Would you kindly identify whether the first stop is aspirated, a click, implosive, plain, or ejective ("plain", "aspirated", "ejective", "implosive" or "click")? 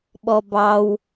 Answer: implosive